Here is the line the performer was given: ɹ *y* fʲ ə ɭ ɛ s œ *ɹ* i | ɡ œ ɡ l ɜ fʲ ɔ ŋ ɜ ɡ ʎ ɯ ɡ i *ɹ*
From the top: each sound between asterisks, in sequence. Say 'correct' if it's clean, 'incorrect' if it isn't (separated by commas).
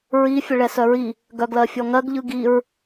incorrect, correct, correct